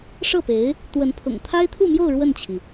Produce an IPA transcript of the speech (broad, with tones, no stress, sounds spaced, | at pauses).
ʂ ɤ˥˩ p e˧˥ ɪ̯ | t̪ w ə˧˥ n pʰ ʊ̰˨˩ ŋ t̪ʰ a˥ ɪ̯ t̪ʰ u˥˧ m j o˥˧ ʊ̯ ɻ w ə˥˩ n t͡ɕʰ i˩